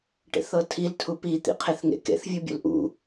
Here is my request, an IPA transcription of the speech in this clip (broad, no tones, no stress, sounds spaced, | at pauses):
ʈ ḛ θ ɤ tʰ i l tʰ u p i t̪ ḭ qʰ e θ ŋ ḛ k ḛ θ vʲ u bʲ ṵ l ʔ ṵ